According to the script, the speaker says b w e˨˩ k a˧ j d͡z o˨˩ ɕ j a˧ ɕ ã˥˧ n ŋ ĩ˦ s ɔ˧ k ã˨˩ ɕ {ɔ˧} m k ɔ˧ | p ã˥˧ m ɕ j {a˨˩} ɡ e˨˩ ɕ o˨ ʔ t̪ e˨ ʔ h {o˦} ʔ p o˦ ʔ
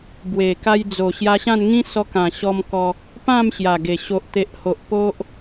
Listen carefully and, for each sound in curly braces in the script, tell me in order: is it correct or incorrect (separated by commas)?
correct, correct, incorrect